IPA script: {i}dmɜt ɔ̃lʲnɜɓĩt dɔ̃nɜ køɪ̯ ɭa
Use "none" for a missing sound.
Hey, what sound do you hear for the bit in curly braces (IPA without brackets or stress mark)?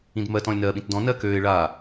ĩ